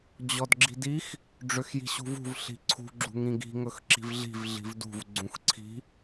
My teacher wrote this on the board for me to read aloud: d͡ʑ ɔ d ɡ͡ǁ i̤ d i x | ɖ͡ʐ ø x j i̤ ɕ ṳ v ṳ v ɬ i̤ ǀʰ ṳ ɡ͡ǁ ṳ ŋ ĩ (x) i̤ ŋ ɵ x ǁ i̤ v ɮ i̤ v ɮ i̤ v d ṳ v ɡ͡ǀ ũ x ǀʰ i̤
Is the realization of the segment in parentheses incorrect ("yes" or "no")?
yes